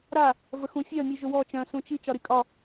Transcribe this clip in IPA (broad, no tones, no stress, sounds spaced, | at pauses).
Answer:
ɾ a | v ə x ũ fʲ œ mʲ u ʒ ʊ w ɔ t͡ʃ œ̃ s ũ t͡ʃ i t͡ʃ ɒ ɾ i kʼ ɒ